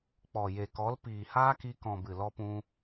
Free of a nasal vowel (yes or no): no